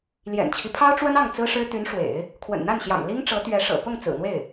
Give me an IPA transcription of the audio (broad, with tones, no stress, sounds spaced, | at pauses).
l j ɛ̰˨˩ n t͡ɕʰ i˦ pʰ ɑ˥ ʊ̯ ʈ͡ʂ w ə˥ n ɑ˥˩ ŋ t͡s ɹ̩˥ ʂ ɻ̩˥ t̪ y˧˥ n ʂ w ḛ˨˩˦ ɪ̯ | kʰ w ə̰˨˩ n n̪ a˥˩ n ɕ j ɑ̰˨˩ ŋ l i˥ ŋ ʈ͡ʂ ɤ˧˥ t̪ ɥ ɛ˧˥ ʂ ɤ̰˨˩ p ʊ˥˩ ŋ t͡s ɹ̩˨˩ n̪ w e˥˩ ɪ̯